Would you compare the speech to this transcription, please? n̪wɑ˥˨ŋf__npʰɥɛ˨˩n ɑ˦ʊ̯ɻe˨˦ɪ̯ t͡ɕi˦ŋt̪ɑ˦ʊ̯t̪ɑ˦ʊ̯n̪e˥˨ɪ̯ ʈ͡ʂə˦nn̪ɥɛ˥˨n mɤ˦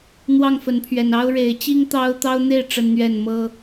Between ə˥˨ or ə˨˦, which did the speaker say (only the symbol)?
ə˨˦